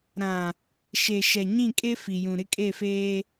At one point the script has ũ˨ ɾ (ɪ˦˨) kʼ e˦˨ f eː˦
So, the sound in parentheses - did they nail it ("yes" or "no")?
no